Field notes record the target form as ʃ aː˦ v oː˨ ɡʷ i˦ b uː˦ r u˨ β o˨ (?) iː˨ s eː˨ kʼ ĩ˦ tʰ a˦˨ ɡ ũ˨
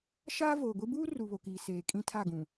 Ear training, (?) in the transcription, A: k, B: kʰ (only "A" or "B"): A